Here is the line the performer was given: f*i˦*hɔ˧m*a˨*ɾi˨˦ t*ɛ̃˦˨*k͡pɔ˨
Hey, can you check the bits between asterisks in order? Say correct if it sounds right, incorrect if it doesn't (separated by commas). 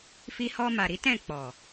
incorrect, correct, correct